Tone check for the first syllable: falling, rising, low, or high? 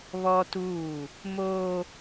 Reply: high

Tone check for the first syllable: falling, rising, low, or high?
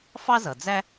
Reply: high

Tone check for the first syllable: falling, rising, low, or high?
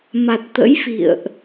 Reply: low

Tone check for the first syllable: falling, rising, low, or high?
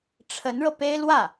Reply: rising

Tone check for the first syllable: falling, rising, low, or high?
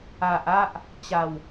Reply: low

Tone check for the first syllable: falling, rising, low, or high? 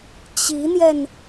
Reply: rising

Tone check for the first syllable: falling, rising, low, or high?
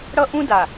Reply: high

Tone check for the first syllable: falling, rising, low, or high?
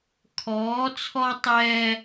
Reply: rising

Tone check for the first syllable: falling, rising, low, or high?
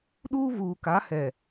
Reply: high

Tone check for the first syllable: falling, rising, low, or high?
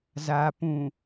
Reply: low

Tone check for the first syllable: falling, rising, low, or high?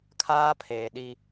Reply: high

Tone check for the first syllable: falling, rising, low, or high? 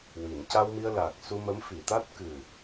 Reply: low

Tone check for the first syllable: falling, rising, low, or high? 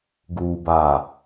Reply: low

